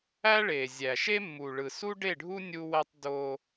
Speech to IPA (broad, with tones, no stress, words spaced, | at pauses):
æ˦ɭe˨ zʲæ˨ʃe˦mːu˨ɭɯ˨ su˦ɖe˦˨ɖʱu˦ nʲu˦wæ˦tˤ do˦